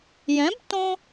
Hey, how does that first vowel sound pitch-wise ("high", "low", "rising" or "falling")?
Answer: rising